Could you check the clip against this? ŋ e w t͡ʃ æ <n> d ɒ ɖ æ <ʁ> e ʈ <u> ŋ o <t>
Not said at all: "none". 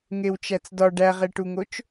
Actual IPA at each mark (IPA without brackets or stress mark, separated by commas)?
t͡s, ʁ, u, t͡ʃ